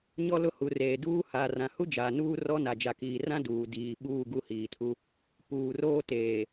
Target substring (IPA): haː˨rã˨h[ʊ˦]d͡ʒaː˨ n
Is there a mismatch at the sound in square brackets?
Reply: yes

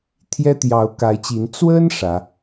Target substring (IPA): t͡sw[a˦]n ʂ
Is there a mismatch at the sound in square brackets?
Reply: yes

